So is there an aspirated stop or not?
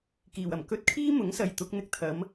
yes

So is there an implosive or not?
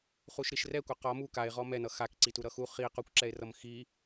no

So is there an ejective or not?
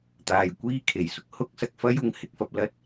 no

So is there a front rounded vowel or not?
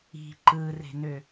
yes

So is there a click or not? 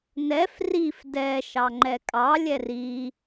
yes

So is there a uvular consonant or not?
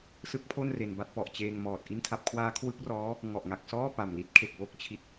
no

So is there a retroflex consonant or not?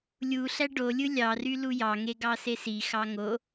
yes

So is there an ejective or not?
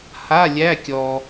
no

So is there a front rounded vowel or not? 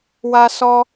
no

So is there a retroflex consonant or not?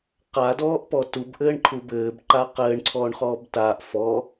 yes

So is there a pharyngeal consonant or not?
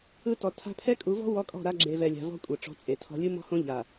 no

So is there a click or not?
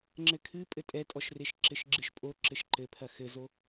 yes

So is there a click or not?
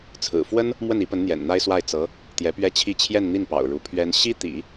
no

